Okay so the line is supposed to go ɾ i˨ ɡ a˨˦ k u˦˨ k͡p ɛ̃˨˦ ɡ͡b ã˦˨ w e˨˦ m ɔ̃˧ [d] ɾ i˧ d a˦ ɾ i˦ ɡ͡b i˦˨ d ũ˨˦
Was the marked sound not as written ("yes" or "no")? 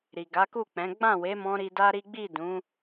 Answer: yes